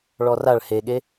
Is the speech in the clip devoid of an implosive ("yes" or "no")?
no